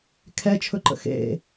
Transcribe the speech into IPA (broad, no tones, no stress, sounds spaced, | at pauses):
kʰ ɛ t͡ʃʰ ɵ ǃ ə̰ x ḛ